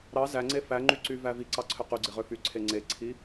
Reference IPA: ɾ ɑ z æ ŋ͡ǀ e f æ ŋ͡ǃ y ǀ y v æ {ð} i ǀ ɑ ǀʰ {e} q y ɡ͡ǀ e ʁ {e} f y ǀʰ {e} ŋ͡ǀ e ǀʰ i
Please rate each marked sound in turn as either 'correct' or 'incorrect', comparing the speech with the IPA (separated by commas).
incorrect, incorrect, incorrect, correct